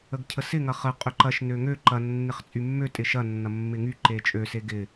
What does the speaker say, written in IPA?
ə ɡ cʰ ə s ɪ ŋ ɐ χ ə qʼ ø ǃ ɐ ʃ n ø ŋ ø ǃ ɐ nː ɪ χ t͡sʼ y mː ø tʼ ɪ ʃ ɐ nː ɐ mː ɪ ŋ y ǃ e t͡ʃʼ ø s e ɡ ɪ

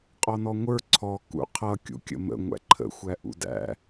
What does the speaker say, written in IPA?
qʼ ɔ n ɔ ŋʷ ə˞ ǀʰ ɔ k ṵ qʰ ʌ kʲ ṵ kʲ ə̰ m ə̰ ŋʷ æ̰ ǃʰ ə̰ xʷ æ ʔ ṵ d æ̰

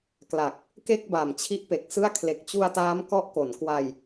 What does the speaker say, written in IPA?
k l a˨˩ k̚ | k e˥˩ k̚ b a˨˩ m t͡ɕʰ i˦˥ ʔ p e˨˩ k̚ s ɯ˥˩ a̯ kʰ l e˨˩ k̚ t͡ɕ u˧ a̯ t aː˦˥ m k ɔ˦˥ ʔ k o˩˦ n k w a˧ j

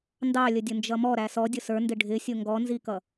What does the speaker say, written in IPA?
n d ɑ lʲ ə dʲ ʊ n d͡ʒ ʌ m ɔ ɾ æ s ɔ dʲ ʊ s ə˞ n d ɪ ɖʱ ɪ sʲ ʊ ŋ ɡ ɔ n z i k ʌ

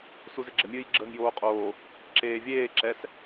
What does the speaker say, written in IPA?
s u z ɪ ɡ͡ǁ ə mʲ ɨː j ɡ͡ǁ əː ŋ j oː qʼ oː | ǁ eː vʲ eː ǁ ɛ s

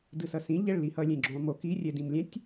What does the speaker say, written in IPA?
d ɯ s ʌ s ĩ ʎ ɛ ɭ l i h ʌ lʲ ẽ ɡ͡ǁ õ lˠ m o k i rʲ ɛ d ĩ m lʲ ɛ̃ tʲ

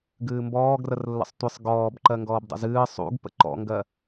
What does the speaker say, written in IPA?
ɡ ɨː m b ɔː ɡ r ə r lː ə̰ sˤ tʷ ɨ sˤ ɡ ɔː b ǃ ɜ ŋ ɡ ɔː b dˤ ə̰ z ɨː sˤ ṵ ɡ p ə̰ ǃ ɔ̰ ŋ ɡ ɜ

